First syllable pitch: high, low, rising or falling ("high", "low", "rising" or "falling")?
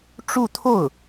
falling